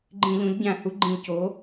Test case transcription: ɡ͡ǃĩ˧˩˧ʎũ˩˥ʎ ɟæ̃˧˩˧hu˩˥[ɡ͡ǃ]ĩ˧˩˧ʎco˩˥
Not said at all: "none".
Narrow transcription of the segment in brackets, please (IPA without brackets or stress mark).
ɡ͡ǃ